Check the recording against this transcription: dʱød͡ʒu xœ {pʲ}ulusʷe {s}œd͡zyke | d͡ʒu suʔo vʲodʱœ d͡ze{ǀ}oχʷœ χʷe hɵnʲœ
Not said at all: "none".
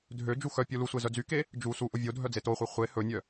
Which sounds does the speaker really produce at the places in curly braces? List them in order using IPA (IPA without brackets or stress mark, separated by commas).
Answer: pʲ, z, t